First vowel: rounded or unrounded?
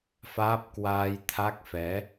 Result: unrounded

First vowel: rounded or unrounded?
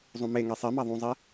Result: rounded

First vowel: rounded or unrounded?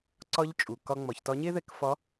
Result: rounded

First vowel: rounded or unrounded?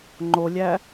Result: rounded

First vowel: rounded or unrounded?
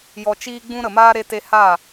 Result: rounded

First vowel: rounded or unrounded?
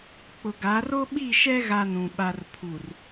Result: rounded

